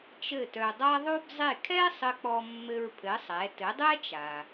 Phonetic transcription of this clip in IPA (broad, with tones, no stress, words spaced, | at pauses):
t͡ʃɘ˥˩tœ˧dˤa˥ ðˤo˥bzˤe˥˩ kʰɛ˥sˤɘ˧ k͡pɔ˧ mːɘ˧ɹpʰɘ˩˥ sˤɛ˩˥ tɘ˩˥dˤɛ˥t͡ʃa˩